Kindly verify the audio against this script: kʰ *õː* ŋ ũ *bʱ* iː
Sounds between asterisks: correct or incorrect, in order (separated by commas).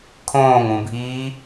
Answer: correct, correct